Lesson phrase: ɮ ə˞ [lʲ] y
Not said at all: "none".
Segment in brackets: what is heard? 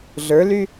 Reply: l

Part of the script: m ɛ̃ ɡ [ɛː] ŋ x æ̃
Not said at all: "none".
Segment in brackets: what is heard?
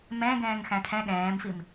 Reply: ɛ̃ː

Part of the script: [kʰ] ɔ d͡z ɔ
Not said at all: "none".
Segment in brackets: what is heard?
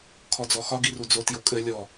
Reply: kʰ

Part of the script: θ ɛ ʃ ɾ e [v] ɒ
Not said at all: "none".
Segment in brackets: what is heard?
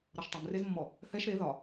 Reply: ð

